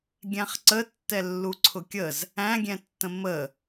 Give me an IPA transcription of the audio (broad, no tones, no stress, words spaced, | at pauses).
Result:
ɡʲæ̃χǀətːɛlːu ǀʰʊkʲəz | æ̃ɡʲɛ̃tːə̃ mə